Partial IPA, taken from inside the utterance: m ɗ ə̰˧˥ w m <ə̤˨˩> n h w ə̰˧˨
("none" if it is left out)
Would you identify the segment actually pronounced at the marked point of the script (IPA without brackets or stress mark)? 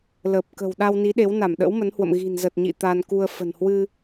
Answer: ə˨˦